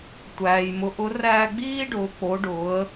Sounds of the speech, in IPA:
tʷ æː˩ j m ʊ˩˧ ʔ ʊ˩˧ r æː˧ ɡ͡b iː˥ ɖ ʊː˩˧ k͡p o˩˧ ɖ ʊː˩˧ ə̯

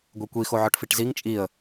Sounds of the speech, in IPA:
ɡʷ e kʷ i x o ʕ ɒ ʈ f i ʈ z i ŋ t͡ʃʼ i ə̯

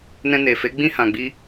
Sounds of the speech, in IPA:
n ɛ̃˧ n e˨ f e˨˦ ɡ͡b ĩ˦ h ã˧ ɡ͡b i˦

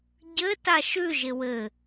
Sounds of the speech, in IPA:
ɟ ɘ t a ʃ ʉ ʒ ɪ w ɘ

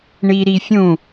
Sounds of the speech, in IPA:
ɳ i ɾ i fʲ ũ

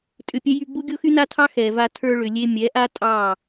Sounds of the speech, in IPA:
tʼ ʏ˧ pʲ ɛ˦ j y˧ ɡ͡b u˦ ɡʲ o˦ x y˦ n a˦ tʰ ɑ˦ x ɛ˨ v a˧ tʰ ə˞˧ ɭ ʏ˨ lʲ e˧ mʲ ɛ˨˦ ʔ a˦ tʼ ɑ˦˨

